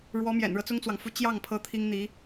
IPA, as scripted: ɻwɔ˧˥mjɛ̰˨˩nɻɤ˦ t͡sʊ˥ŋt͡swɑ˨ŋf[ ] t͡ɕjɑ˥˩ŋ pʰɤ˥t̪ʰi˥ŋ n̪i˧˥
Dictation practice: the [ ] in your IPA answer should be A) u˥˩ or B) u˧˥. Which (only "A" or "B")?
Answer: B